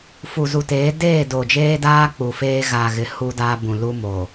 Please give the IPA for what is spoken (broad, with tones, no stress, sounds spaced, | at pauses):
f u˨ z u˨ t eː˨˦ d eː˦˨ d o˨ d͡ʒ eː˦ d aː˦ k͡p u˨ f eː˦ ɣ a˨ ɣ ɪ˨ h u˦ d aː˦ b ũ˨ l u˦ m oː˨